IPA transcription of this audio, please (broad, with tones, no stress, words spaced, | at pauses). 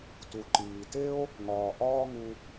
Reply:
tu˩ǃiː˩te˥o̯ | ŋɒː˩ʔɒː˥ŋu˧